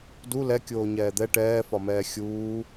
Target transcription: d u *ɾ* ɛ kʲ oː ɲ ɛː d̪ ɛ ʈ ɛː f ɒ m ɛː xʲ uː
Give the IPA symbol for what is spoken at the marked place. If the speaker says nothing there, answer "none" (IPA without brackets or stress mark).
l